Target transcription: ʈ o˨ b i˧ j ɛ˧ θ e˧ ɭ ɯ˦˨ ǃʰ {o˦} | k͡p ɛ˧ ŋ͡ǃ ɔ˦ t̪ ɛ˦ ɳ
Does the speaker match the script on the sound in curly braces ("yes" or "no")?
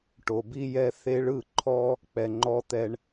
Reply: no